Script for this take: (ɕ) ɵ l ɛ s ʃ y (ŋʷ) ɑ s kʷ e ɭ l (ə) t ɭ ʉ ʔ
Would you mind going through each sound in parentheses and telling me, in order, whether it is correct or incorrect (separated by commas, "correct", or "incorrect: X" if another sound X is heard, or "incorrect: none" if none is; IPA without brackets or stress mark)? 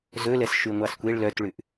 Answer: incorrect: z, correct, incorrect: œ